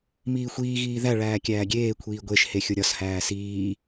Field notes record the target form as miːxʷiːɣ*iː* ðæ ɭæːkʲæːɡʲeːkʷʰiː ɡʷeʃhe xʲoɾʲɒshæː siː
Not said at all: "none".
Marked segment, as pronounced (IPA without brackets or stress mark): iː